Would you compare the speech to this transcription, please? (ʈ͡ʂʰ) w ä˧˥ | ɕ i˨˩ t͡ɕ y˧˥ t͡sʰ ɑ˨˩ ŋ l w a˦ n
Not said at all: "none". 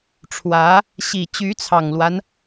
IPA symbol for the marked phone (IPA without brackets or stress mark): ʈ͡ʂʰ